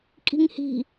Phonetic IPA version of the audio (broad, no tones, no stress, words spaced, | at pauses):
kʼi̤ŋhi̤